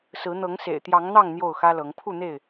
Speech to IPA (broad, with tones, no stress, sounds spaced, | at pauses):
s ɹ̩˨˦ n̪ ɤ˨˦ ŋ s ḛ˨˩ ɪ̯ t̪ j ɑ˨˦ ŋ n̪ ɑ˥˨ ŋ n̪ j o˥˨ ʊ̯ x ä˦ l ɤ˨˦ ŋ pʰ u˥˨ n̪ e˥˨ ɪ̯